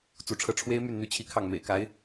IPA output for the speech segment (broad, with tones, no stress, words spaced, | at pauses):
t͡su˧˥ʈ͡ʂʰɤ˥˩ ʈ͡ʂʰwe˥ɪ̯my˥˩n n̪y˥t͡ɕʰi˥˧ kʰɑ˥˩ŋmḛ˨˩ɪ̯ka˧˥ɪ̯